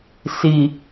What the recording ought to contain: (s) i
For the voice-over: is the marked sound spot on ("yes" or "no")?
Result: yes